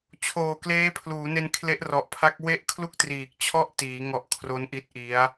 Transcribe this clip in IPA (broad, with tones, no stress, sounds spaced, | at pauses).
t͡ɕʰ oː˨˩ k l eː˦˥ pʰ l uː˩˦ n e˧ n kʰ l e˦˥ ʔ r ɔ˨˩ ʔ pʰ a˦˥ k̚ w e˥˩ ʔ kʰ l u˥˩ k̚ t r iː˨˩ k̚ t͡ɕʰ ɔ˥˩ ʔ t iː˩˦ ŋ ɔ˨˩ ʔ kʰ r o˦˥ n ʔ i˦˥ t̚ ʔ i˦˥ a̯